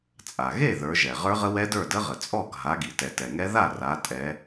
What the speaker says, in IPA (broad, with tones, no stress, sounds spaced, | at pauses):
t͡sʼ a˩ ɣ e˥˨ ð ə˞˨˦ ʒ ɛ˩ ʁ ə˞˦˥ ʁ ə˦˥ w ɛ˦˥ d ə˞˥˨ d ə˦˥ ʁ ə˩ t͡sʼ ɔ˥˨ ɡʱ a˨˦ ɡ i˩ t ɛ˩ t ɛ˩ ŋ ɛ˦˥ ð a˥˨ r a˨˦ tʼ ɛ˨˦